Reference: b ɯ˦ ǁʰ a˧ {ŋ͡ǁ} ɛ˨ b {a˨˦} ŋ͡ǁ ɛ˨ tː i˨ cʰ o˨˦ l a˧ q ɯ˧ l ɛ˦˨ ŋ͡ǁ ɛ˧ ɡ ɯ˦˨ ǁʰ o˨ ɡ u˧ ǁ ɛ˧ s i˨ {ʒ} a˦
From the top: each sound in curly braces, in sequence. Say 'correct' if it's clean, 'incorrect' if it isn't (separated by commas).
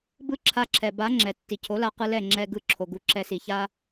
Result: incorrect, correct, incorrect